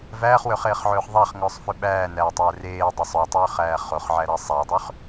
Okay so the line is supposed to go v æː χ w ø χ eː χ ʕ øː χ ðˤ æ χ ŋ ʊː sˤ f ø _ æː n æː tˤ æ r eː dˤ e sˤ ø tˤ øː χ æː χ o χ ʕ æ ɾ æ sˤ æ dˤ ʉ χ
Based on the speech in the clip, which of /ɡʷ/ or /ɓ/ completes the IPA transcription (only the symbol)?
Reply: ɓ